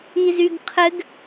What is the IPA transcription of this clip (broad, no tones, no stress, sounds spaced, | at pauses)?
i z y ɡ qʰ ɘ ɡ